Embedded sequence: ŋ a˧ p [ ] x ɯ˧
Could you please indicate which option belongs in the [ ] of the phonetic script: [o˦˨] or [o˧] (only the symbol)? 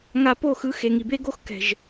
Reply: o˦˨